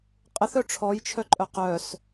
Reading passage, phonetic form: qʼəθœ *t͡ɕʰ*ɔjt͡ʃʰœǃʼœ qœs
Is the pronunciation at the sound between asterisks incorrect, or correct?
incorrect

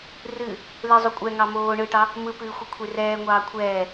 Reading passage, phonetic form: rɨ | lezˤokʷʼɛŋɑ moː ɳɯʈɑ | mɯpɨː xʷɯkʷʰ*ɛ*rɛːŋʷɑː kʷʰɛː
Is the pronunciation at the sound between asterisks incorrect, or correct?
incorrect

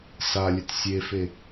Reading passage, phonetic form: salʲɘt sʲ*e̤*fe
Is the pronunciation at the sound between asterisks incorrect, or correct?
incorrect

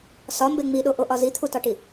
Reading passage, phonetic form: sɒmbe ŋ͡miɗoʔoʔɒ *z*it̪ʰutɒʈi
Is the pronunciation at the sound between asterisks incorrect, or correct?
correct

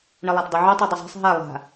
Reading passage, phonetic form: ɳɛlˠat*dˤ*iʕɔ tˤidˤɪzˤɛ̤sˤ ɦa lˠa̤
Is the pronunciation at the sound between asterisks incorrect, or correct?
correct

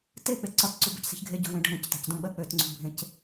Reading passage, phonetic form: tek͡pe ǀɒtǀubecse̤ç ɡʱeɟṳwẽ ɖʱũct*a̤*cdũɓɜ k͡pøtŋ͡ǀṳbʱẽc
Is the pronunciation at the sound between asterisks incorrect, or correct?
correct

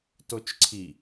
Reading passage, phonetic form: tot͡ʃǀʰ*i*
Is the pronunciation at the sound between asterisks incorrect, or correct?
correct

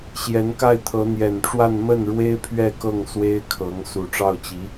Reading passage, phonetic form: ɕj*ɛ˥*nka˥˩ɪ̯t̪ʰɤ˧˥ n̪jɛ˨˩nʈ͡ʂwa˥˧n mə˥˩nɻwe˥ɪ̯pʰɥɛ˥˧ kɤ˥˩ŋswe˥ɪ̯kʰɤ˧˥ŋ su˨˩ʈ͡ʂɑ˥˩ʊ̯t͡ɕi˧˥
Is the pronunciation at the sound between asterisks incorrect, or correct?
incorrect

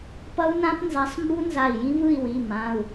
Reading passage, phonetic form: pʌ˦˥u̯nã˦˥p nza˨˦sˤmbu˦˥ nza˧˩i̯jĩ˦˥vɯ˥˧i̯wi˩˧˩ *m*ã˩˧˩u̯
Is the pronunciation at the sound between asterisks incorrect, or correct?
correct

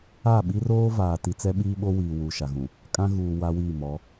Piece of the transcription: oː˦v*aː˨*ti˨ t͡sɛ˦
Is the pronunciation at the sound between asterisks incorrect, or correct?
correct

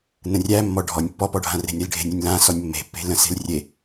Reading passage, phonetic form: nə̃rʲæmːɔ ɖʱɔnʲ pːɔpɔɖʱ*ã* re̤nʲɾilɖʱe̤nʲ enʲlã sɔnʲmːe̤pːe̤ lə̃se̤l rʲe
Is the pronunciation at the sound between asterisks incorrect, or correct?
correct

